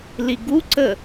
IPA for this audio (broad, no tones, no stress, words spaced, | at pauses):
liɡuǀə